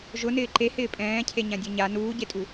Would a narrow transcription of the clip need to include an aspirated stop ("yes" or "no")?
yes